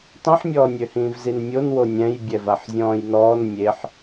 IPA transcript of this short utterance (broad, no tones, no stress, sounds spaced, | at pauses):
tˤ ĩ ħ mʲ ɔː nʲ ø h ĩː v z i n mʲ o n w o nʲ ɛ̃ j bʲ ɛ v a ħ zʲ ɔ̃ː j n ɔː n mʲ e ħ